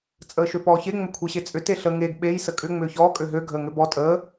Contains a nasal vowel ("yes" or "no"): no